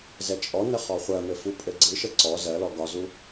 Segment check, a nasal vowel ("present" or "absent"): absent